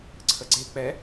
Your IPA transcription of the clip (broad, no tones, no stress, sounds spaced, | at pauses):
ǀʰ ə ɡ͡ǀ e k͡p ɛ